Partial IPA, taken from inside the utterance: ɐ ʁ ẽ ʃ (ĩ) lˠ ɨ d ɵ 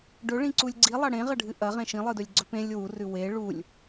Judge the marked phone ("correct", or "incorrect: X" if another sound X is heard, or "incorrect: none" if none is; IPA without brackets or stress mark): correct